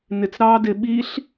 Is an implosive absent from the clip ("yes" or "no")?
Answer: no